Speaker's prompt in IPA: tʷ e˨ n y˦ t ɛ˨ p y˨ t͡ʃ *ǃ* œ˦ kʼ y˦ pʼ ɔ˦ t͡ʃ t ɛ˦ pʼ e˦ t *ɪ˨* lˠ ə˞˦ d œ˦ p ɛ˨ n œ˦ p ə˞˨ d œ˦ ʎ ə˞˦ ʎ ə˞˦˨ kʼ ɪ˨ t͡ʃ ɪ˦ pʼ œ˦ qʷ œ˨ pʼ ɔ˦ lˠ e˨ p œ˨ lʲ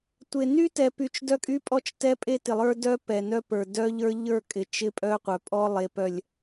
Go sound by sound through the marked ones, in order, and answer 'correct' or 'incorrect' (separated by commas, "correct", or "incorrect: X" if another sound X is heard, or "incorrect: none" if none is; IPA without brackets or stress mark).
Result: incorrect: d, correct